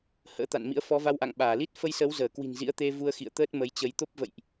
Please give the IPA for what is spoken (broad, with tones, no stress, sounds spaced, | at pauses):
h ə̰ː˧˥ t̪ a̰˧˨ n m ḭ˧˥ ə̯ f ɔ˨˦ v a˧ w ʔ a̰˧˨ ŋ ɓ aː˧˩ l i˦˥ t̚ f ə˧ j s əː˨˦ w z əː˧˩ k w i̤˨˩ n z ḭ˧˥ ə̯ t̪ e˧ v u˧ ə̯ x ḭ˧˨ ə̯ t̪ əː˦˥ t̚ m ə˨˦ j t͡ɕ ə˨˦ j t̪ o˦˥ p̚ v ə̰˧˨ j ʔ